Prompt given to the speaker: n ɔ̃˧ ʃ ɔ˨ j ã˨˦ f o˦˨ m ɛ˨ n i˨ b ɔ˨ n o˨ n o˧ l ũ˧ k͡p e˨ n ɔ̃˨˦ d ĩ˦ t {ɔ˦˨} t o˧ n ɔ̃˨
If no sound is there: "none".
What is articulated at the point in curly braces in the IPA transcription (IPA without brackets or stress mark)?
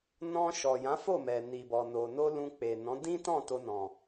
ɔ̃˦˨